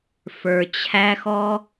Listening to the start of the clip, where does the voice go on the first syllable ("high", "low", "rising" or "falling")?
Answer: low